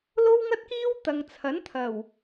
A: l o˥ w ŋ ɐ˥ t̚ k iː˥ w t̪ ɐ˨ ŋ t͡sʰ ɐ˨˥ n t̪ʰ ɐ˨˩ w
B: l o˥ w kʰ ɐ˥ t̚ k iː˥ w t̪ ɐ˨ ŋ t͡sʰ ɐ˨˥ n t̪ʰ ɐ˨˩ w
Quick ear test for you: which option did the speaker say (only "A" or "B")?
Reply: A